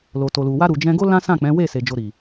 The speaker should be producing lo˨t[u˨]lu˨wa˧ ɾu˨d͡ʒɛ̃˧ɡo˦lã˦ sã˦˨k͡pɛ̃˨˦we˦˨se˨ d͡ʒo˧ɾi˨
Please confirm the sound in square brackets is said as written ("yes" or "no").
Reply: no